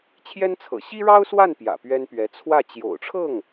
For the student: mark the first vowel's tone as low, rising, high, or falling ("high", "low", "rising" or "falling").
high